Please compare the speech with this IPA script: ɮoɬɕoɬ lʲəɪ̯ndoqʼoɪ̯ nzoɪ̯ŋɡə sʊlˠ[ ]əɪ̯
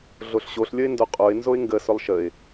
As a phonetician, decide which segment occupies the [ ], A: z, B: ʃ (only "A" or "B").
B